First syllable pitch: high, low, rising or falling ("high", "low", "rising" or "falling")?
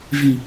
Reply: low